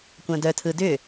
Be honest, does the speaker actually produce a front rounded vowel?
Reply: yes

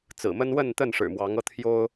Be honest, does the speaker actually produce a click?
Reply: no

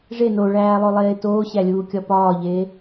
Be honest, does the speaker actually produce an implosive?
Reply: no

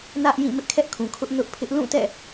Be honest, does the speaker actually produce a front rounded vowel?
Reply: no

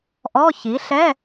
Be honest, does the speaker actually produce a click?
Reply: no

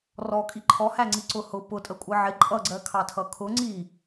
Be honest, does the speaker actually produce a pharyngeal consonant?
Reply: yes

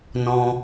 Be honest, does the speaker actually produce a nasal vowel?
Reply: yes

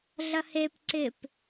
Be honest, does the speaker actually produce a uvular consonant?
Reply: no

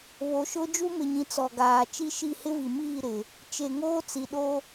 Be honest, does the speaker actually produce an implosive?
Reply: yes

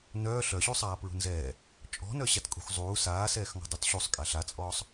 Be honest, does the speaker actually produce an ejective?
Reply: yes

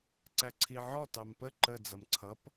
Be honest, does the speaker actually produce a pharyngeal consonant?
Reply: yes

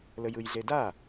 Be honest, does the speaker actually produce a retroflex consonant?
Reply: no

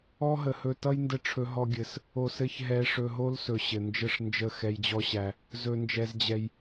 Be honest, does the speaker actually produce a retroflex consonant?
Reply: yes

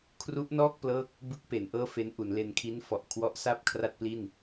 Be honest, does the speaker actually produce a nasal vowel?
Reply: no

